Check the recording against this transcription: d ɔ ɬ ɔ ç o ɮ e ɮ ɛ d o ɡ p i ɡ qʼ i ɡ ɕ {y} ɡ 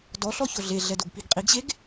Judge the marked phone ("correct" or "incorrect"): incorrect